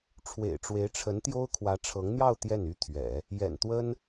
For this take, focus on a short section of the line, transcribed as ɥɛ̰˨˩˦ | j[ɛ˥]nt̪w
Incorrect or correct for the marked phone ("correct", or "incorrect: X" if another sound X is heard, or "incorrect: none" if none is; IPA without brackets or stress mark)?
incorrect: ɛ̰˨˩